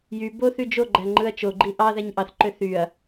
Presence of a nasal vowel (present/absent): absent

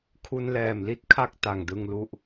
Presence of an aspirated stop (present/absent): present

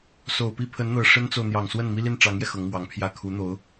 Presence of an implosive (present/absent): absent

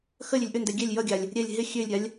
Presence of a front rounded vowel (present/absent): present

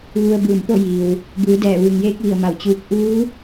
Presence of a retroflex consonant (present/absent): absent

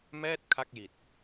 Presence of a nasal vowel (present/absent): absent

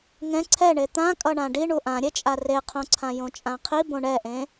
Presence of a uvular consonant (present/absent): present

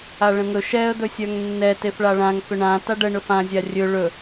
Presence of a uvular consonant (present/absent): absent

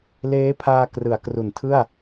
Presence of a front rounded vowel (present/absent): absent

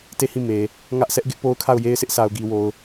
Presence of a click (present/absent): absent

